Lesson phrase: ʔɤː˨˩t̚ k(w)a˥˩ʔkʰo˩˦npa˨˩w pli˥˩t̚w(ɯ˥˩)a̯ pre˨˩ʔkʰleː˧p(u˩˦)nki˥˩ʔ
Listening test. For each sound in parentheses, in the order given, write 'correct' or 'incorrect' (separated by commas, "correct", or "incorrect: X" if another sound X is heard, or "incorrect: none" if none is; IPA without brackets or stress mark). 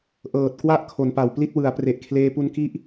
correct, incorrect: ɯ˩˦, incorrect: u˧